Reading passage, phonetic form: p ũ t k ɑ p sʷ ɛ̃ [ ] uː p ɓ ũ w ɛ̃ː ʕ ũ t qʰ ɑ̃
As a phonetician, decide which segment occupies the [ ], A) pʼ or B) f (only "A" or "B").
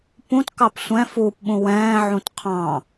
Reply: B